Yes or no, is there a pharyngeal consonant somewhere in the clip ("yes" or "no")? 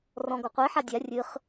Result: yes